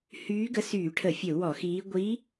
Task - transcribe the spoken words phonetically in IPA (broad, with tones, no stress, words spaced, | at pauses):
hyː˧˥ɡə˧˥syː˧˩˧ʈʰə˧˩˧ fʲə˧˩˧u̯wɔ˧˩˧xiː˧˥ ɡʷiː˧˥